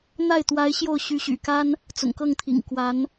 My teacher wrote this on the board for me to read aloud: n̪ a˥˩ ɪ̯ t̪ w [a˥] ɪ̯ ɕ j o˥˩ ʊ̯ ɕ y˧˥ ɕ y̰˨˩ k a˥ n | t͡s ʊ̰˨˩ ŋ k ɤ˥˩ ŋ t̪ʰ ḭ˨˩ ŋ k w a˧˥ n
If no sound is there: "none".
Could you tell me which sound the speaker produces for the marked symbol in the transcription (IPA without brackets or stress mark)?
a˧˥